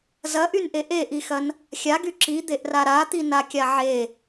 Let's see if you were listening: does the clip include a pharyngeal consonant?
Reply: yes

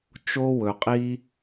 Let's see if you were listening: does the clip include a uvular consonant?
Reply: yes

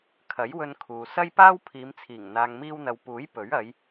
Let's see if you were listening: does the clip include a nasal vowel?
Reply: no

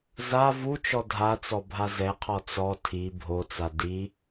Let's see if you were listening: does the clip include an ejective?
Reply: no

